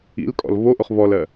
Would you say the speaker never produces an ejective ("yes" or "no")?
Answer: no